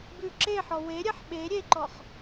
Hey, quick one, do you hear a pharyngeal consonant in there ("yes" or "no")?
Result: yes